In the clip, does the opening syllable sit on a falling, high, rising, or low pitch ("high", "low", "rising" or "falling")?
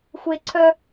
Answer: high